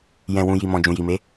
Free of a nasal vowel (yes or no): no